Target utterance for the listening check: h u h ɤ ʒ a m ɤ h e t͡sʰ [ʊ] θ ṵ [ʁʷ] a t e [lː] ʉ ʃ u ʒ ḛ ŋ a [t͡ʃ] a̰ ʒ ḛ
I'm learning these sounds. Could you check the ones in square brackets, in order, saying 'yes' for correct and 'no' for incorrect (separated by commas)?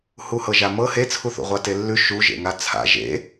no, yes, yes, no